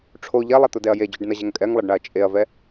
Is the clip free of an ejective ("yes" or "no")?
no